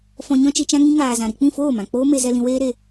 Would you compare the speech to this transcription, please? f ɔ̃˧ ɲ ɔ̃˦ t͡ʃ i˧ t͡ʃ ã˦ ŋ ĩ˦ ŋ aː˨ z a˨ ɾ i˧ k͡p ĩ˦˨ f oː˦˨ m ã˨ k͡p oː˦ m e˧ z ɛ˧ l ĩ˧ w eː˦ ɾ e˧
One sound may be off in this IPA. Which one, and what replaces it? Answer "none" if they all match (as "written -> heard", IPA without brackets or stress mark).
a˨ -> ã˨